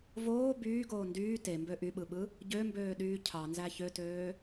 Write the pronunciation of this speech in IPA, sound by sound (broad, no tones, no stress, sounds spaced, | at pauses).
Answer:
v oː b yː ɡ oː n d yː t e m b ø ʔ y ɓ ɯ ɓ ɯ | ɟ ø m b øː ɗ yː cʰ ɑ n z æ ç ø t øː